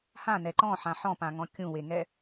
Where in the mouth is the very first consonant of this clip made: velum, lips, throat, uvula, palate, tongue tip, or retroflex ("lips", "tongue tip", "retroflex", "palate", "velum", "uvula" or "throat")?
throat